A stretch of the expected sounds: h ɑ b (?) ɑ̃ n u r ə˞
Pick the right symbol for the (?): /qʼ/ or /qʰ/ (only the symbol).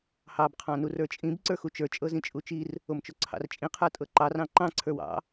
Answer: qʰ